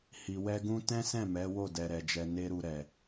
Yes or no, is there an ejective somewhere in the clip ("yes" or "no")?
no